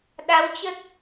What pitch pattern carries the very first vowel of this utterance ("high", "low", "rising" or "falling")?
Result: rising